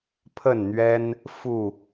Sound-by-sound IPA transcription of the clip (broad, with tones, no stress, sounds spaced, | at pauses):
pʰ ə˥˨ n n̪ ɥ ɛ˦ n | f u˥˨